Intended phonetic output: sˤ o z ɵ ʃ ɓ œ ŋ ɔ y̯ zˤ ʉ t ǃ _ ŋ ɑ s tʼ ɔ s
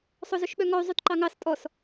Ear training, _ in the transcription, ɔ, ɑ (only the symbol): ɑ